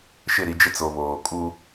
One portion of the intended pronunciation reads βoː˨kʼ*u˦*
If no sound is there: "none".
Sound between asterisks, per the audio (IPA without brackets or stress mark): u˦